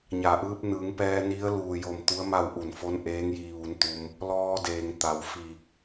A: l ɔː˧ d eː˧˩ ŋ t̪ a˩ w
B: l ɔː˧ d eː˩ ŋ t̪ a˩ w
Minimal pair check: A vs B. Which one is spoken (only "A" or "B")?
B